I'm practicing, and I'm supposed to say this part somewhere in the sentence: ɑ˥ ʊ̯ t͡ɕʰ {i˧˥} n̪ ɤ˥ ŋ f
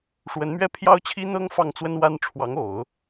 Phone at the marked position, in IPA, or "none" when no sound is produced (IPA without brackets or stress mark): i˥